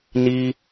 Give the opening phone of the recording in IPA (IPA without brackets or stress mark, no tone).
n